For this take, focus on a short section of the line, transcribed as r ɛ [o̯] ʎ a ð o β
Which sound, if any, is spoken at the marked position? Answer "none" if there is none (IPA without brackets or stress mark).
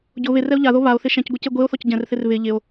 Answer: o̯